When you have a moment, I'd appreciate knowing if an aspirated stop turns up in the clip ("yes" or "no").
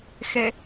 no